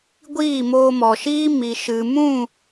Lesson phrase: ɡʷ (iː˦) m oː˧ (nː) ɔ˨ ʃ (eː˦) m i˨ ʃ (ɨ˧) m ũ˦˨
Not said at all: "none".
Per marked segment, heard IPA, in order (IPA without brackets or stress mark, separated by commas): iː˦˨, m, iː˦, ɨ˨